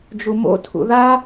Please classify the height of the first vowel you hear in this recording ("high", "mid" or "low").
high